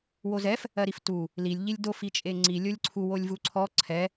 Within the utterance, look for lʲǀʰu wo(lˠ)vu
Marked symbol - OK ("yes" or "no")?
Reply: no